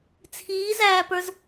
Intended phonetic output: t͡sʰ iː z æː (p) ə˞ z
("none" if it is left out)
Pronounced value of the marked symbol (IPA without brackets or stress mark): p